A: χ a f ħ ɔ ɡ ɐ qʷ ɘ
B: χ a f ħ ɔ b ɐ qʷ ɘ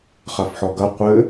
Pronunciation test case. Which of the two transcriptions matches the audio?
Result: A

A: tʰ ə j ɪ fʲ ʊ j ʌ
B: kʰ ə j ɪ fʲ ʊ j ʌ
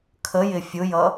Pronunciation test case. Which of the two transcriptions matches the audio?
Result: B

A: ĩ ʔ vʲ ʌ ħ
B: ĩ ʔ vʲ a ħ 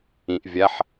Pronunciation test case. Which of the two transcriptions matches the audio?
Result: B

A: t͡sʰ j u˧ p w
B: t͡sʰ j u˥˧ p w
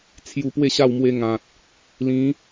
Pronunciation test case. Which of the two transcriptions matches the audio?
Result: A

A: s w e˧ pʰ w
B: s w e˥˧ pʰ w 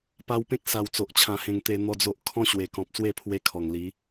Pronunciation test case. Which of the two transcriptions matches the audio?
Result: B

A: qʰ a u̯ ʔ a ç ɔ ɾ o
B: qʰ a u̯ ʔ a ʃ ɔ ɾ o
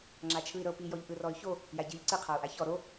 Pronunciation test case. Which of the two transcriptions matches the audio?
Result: A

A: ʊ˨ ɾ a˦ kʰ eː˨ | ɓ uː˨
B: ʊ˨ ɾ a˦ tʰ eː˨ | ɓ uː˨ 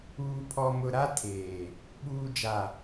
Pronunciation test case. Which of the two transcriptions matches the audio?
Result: B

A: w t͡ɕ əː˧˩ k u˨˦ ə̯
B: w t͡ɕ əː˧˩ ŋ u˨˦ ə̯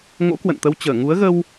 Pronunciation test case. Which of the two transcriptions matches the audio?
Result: B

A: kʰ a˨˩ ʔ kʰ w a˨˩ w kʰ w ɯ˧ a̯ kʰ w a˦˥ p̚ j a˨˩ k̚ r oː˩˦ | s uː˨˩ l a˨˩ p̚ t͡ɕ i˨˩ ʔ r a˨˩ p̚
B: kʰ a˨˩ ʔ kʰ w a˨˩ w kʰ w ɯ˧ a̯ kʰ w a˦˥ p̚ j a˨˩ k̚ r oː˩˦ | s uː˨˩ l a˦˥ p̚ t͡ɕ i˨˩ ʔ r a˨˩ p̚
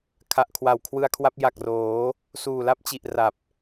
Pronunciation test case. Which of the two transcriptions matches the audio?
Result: B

